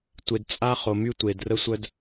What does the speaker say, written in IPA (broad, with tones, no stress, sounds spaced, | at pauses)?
tʷ e˨ d t͡sʼ a˦ χ o˨ m y˦ tʷ e˨ d r ə˦ sʷ œ˦ d